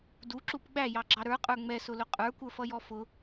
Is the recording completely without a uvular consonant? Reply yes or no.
no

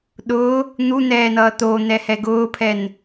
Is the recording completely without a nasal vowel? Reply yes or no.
yes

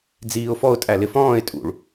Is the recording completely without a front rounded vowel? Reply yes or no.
yes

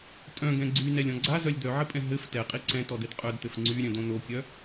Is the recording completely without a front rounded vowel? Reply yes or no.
no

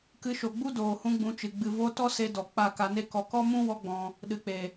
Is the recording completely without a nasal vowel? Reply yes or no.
no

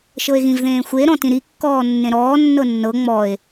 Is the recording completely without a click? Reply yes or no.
yes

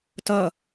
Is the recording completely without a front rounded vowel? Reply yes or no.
yes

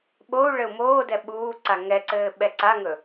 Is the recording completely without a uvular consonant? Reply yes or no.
yes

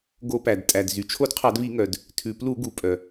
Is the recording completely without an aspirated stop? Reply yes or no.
no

